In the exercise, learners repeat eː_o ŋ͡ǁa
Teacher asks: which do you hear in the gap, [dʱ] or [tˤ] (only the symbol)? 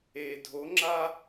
dʱ